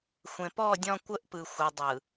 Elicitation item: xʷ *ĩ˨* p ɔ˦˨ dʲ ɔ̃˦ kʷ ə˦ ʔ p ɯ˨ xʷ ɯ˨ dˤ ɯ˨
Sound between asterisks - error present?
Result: yes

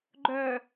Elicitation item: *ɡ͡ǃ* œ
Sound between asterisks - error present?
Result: no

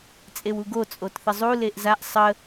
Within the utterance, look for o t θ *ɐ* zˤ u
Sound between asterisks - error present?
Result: yes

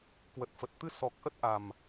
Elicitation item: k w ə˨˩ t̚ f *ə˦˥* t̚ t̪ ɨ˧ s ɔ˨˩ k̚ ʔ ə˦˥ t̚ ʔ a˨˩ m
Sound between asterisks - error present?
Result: yes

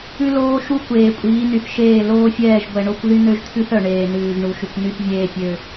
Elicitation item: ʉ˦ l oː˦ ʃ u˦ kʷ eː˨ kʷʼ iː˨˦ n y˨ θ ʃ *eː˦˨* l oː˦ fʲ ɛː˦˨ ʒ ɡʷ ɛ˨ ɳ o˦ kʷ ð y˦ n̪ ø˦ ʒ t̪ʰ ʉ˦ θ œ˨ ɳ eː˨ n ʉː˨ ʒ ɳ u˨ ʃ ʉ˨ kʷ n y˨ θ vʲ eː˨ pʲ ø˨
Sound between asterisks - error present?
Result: no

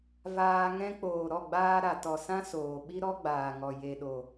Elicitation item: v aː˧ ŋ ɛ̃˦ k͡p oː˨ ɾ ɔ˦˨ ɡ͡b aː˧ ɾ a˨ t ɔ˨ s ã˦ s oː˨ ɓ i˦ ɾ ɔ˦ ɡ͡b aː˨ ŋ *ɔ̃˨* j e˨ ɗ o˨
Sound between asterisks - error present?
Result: yes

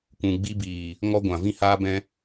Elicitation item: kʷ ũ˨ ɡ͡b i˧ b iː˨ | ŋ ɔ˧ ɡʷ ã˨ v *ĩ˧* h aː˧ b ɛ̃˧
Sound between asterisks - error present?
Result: no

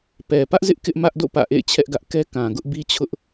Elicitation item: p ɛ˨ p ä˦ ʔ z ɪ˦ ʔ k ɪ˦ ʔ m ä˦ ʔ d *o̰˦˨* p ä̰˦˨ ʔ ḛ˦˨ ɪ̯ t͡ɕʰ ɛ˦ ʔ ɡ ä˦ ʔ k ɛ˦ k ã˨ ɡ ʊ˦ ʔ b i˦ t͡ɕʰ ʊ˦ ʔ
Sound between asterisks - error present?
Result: no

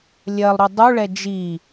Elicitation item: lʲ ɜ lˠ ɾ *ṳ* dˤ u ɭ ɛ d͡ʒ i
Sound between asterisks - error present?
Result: yes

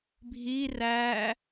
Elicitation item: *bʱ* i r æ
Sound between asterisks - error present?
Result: no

